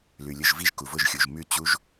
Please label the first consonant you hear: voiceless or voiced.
voiced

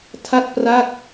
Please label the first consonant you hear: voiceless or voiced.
voiceless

